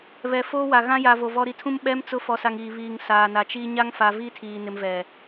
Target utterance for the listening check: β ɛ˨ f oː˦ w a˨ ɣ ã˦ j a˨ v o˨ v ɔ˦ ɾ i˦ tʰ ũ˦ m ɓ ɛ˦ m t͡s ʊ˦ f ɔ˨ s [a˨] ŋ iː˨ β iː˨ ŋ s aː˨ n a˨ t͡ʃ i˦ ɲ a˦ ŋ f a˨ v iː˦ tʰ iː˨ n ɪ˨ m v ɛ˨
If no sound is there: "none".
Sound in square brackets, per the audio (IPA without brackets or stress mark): a˨